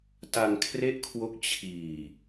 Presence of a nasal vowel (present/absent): absent